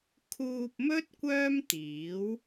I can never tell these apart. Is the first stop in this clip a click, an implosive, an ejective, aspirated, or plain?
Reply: aspirated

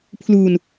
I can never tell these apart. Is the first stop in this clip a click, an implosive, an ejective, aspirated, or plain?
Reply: aspirated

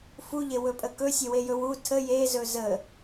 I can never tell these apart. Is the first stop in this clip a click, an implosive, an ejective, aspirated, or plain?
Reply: ejective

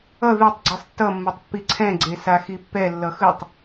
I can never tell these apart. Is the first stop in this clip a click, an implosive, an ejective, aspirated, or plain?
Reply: plain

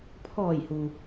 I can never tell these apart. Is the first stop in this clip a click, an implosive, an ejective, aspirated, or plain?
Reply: aspirated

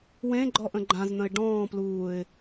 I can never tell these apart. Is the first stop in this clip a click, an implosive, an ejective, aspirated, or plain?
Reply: click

